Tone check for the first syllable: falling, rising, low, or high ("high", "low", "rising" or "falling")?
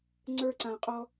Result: high